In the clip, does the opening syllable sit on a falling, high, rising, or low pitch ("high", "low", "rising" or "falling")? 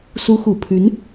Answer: rising